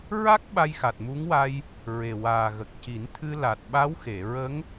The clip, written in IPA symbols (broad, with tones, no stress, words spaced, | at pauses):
ɹa˦˥k̚ ɓa˧jxa˨˩t̚mu˧˥ŋwa˧j | ɹe˨˩waː˨˩ɣə˨˩k̚ ci˨˩˦nt̪ʰɨ˧ la˨˩t̚ ɓa˧˥wxe˨˩˨ ɹə˧˥ŋ